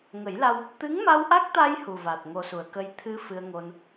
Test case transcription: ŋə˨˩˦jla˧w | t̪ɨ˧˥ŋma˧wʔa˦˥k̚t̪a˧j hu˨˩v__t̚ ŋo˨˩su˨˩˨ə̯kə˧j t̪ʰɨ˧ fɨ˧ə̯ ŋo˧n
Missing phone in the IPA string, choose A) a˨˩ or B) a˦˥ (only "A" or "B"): A